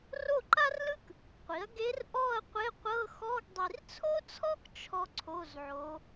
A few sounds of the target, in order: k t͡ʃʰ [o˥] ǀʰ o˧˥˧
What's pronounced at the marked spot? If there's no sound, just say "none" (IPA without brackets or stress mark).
ɔ˥